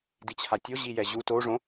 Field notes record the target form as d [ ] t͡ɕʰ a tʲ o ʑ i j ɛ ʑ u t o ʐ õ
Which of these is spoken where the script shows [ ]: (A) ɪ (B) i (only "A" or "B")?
B